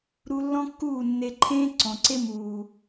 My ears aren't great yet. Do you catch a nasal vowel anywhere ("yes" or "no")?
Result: yes